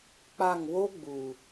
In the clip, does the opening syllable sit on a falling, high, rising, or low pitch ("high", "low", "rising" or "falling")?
falling